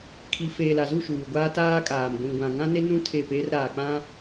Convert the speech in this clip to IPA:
kʰi˨feː˨la˨zu˦˨ ʃuː˨ɡʷaː˦ taː˦kʼaː˨m ɡʷĩ˨ɡʷã˨ ŋã˦ne˦nũ˦ tʰe˦˨pe˦r ɾaː˨k͡pã˦

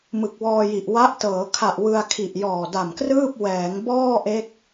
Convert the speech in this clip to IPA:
mɯ˨˩k̚wɔː˧ji˨˩ʔ wa˦˥ʔtɤː˩˦kʰa˨˩ʔ wɯ˧a̯kʰi˨˩ʔ jɔː˨˩da˨˩mkrɯː˥˩p̚ wɛː˩˦ŋbɔː˥˩ʔe˦˥k̚

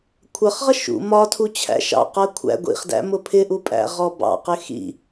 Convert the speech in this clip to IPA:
kʷʰʌχʁʌ ʃṵ mɒtʰu t͡ɕʰæ̰ʃɑ̰qɜ kʷʰæ̰ ɡʷḭχdæ̰ mʊpʰɪʔu pʼæ̰ʁɔbɑ̰qɪ xḭ

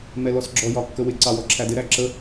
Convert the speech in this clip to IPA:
mɛlɔsɡ͡ǁɔ jɒkːəwɪ ǀɑwɔǁʰædɪ ɾæǁə

